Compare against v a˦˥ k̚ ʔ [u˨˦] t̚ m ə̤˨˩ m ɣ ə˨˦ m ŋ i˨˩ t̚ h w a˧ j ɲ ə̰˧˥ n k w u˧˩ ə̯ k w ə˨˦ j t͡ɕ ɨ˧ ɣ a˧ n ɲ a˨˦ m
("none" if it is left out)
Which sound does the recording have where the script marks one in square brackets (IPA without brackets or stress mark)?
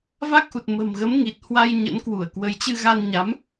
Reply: u˨˩